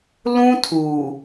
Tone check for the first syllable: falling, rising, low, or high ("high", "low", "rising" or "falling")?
high